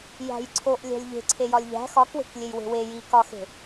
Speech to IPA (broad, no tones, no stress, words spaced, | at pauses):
jæ̤jǀʰoʔ lʲæ̤lʲʎe̤ ǀʰejɒlʲʎæ̤ xɒkwe̤klʲej we̤we ji kɒxe̤